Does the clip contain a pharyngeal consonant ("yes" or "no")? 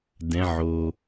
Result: yes